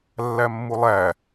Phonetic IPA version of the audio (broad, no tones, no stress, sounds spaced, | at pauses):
lː æ mː u lˠ æ